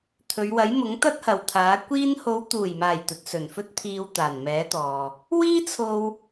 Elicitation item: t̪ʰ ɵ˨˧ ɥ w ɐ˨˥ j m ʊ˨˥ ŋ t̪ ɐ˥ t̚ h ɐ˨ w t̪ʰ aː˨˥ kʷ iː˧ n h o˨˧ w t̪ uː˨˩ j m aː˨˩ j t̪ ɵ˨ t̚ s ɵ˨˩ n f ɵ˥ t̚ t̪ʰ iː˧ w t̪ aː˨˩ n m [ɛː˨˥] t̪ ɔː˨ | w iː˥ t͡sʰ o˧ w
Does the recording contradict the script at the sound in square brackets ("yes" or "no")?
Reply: no